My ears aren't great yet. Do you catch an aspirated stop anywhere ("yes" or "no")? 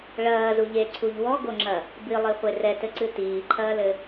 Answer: yes